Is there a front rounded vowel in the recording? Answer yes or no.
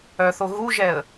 yes